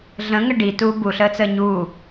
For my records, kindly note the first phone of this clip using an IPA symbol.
ɮ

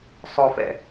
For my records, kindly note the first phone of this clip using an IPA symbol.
sˤ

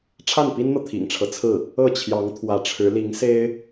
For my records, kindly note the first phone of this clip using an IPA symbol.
ʈ͡ʂʰ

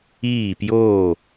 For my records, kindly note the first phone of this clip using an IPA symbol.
iː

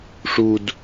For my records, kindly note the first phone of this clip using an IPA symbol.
ʂ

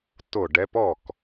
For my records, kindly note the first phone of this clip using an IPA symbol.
t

